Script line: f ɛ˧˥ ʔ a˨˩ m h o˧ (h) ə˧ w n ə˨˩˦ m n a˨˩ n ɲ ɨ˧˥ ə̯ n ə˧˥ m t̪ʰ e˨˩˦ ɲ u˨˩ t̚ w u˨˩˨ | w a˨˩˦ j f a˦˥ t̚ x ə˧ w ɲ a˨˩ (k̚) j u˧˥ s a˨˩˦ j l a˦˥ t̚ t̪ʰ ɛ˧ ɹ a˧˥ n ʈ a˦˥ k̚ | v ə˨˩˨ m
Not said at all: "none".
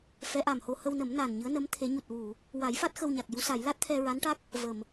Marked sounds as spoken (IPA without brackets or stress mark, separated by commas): h, k̚